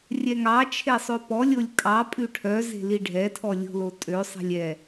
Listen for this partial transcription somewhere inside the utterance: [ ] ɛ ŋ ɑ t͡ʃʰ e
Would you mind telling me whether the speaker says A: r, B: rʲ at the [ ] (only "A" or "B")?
B